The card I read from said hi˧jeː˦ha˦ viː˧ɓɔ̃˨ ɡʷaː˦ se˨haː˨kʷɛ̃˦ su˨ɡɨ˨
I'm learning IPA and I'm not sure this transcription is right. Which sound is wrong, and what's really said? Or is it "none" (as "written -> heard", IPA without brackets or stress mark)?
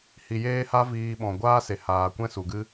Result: ɨ˨ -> ɨ˦